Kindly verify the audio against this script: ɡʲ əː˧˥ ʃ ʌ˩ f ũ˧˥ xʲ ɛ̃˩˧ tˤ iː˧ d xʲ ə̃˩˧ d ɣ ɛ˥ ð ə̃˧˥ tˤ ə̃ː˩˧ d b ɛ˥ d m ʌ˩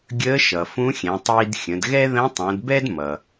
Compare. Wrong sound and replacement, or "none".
none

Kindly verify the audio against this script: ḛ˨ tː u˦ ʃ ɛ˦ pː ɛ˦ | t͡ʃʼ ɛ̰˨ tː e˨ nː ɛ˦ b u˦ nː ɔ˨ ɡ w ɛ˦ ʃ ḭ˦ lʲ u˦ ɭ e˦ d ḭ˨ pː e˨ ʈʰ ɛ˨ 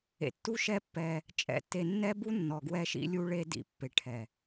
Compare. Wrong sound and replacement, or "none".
none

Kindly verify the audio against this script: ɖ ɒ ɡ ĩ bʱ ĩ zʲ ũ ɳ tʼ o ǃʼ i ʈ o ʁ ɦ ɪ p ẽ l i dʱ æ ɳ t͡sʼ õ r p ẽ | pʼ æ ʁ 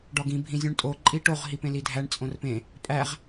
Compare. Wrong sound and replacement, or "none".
ɪ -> i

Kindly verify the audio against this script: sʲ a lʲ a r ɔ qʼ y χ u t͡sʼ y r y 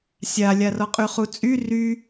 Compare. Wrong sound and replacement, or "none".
none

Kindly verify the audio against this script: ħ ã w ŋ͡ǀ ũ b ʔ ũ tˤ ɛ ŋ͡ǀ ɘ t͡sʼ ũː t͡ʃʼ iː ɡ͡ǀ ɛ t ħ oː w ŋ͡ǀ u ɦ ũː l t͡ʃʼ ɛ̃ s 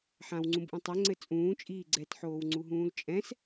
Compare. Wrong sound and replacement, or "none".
none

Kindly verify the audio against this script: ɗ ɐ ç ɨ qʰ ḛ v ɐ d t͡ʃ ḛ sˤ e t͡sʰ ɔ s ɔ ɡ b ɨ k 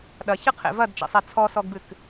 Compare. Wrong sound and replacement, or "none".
none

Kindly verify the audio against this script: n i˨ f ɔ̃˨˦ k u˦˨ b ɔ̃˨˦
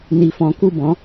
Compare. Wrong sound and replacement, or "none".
none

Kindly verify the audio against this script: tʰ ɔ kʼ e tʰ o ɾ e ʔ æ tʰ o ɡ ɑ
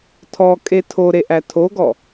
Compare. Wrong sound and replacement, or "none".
ɑ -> ɔ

